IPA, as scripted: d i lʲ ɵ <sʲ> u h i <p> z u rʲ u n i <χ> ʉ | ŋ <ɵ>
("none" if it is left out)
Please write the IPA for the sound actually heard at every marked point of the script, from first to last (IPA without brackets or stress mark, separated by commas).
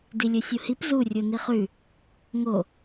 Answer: sʲ, p, χ, o